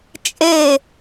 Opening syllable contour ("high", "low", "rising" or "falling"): falling